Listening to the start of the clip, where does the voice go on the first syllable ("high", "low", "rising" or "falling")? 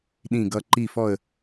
falling